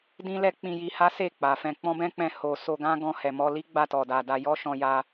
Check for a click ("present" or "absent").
absent